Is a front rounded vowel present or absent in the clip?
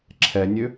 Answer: present